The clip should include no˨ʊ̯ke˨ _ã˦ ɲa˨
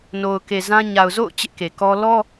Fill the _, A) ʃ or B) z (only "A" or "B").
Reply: B